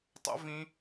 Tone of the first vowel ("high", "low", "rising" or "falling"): high